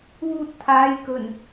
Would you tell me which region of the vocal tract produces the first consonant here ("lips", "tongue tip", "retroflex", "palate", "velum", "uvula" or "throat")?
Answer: tongue tip